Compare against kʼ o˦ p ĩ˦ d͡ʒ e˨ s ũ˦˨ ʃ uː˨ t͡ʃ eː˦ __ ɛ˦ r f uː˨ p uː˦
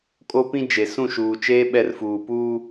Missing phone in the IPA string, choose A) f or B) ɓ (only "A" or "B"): B